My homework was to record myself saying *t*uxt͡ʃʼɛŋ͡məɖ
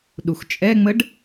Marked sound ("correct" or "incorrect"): incorrect